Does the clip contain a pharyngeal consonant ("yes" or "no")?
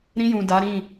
no